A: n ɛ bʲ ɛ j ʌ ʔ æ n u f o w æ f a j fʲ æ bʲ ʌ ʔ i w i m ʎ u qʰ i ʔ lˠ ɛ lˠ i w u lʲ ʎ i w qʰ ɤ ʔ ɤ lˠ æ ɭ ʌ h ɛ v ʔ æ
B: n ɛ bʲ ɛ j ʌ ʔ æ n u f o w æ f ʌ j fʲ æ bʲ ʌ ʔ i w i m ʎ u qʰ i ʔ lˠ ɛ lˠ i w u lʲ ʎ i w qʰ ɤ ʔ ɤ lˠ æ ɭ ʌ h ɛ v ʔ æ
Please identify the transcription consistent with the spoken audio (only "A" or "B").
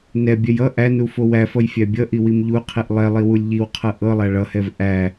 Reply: B